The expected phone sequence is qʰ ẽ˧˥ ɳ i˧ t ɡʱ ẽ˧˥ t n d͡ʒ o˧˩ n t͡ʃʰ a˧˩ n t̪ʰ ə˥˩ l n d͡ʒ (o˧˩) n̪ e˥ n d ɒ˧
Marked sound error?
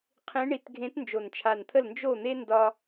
yes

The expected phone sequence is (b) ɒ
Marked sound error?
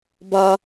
no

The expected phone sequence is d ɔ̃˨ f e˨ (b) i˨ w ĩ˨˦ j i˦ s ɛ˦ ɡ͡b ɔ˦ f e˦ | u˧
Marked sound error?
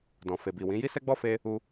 no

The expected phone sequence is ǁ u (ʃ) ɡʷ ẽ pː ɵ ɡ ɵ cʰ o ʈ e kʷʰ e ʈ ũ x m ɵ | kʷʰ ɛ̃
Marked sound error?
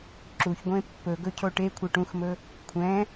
yes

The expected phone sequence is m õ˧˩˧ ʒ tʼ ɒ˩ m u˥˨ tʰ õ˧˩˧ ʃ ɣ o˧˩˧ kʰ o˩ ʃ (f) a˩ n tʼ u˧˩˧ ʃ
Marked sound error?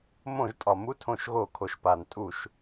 yes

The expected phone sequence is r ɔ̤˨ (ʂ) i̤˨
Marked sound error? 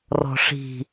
no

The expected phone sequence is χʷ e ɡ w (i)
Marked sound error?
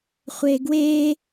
yes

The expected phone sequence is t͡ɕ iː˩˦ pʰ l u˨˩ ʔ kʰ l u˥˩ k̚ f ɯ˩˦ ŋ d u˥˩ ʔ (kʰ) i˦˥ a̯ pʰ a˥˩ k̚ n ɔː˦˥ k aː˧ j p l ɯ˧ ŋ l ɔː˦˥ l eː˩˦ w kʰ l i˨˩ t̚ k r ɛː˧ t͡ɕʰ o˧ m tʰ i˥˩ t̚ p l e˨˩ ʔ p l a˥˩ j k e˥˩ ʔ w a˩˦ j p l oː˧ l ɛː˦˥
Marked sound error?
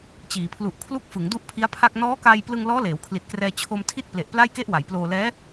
yes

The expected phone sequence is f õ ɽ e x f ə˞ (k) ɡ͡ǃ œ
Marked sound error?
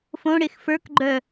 no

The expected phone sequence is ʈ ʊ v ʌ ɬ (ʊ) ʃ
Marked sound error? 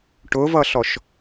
yes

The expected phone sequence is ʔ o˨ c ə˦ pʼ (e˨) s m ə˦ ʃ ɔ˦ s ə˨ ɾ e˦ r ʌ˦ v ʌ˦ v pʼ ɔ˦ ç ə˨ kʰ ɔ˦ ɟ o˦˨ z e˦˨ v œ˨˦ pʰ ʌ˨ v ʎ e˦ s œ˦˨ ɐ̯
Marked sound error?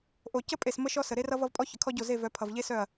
no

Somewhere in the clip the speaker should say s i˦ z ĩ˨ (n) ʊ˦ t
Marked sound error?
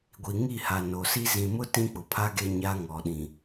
yes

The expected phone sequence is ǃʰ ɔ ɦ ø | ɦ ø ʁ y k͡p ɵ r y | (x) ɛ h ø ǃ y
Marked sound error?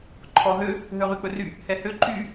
yes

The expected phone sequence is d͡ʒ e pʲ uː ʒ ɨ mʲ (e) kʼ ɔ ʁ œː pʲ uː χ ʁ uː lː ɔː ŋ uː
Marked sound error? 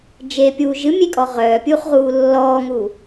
no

